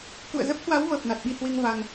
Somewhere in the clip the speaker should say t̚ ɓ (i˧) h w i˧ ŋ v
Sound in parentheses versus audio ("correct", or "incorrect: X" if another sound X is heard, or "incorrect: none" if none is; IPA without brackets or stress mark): correct